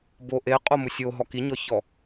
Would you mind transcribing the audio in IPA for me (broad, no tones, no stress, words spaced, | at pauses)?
bo ʔe qʼomʊsʲoɦɔ kiɲɔçɔ